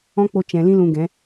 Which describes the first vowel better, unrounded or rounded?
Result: rounded